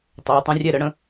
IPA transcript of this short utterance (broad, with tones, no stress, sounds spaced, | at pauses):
tˤ ø˩˧ tˤ ə̃˨˥ rʲ ɛ˥˩ ɾ ə˨˥ ɽ ə̃˨˥